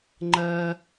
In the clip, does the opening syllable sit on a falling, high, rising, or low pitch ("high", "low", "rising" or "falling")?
high